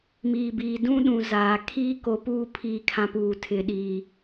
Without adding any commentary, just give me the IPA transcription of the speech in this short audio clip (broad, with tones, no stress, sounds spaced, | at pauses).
m iː˨ b iː˨ d ũ˦ ɗ ũ˨ z aː˨ kʰ iː˦ k o˨ p uː˦˨ pʰ iː˨ kʰ ã˨ p uː˨ tʰ ɪ˨ ɗ iː˨